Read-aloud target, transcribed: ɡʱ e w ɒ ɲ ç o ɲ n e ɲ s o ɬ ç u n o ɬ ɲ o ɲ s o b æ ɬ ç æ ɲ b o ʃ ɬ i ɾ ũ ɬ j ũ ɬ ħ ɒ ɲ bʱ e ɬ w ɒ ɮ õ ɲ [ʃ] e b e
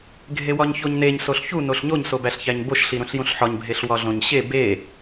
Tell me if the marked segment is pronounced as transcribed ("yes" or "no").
no